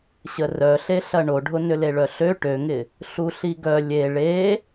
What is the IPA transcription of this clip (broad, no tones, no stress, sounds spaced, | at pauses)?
ɕ ə r œ ɬ e ɬ ɐ ɳ o ɖʱ ʊ n ʏ l e ɭ œ ɬ ø ʈ ø ŋ ɪ | ɬ u ɬ i ɡ œ lʲ e ɭ e